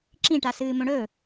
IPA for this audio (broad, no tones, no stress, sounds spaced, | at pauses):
ǁ ĩ ʈ a s ɨː m õ ɽ ɵ